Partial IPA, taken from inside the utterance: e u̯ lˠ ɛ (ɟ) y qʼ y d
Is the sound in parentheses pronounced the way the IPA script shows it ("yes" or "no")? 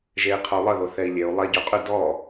yes